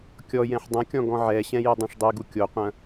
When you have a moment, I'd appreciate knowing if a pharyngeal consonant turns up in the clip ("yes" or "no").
yes